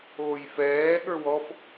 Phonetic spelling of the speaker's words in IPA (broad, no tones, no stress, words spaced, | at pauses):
oːjfɛː ɠə˞wɔf